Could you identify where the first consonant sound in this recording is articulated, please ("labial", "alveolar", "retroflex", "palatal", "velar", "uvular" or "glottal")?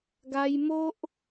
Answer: velar